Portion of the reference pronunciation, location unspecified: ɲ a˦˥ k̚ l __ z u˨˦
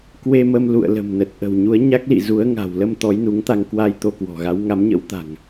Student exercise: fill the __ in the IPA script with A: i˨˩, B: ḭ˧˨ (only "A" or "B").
B